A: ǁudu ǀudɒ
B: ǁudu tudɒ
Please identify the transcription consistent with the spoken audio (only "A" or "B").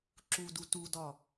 B